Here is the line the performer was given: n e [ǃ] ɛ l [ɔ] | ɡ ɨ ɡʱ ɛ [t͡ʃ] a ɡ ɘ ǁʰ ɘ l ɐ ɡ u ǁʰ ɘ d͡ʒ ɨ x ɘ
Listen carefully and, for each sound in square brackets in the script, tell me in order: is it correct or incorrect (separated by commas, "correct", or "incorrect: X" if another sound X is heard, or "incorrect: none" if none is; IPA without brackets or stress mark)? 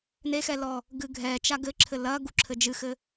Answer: incorrect: x, correct, correct